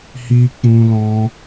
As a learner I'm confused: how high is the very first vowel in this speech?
high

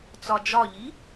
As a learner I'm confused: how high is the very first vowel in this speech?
low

